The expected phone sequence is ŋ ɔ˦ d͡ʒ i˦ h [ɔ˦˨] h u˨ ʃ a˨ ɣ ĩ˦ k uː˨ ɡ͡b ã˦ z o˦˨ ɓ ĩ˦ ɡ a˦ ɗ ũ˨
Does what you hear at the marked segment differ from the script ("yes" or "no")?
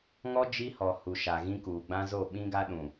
yes